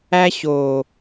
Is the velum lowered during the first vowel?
no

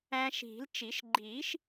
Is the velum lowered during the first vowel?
yes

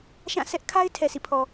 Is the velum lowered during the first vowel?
yes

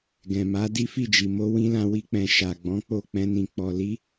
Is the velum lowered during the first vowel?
yes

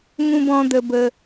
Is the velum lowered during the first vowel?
yes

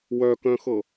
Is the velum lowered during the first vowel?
no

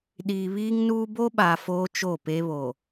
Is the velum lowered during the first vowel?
no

